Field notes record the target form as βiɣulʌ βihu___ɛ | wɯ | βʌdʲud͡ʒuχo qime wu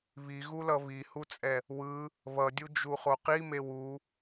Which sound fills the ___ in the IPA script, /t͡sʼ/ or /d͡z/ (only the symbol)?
t͡sʼ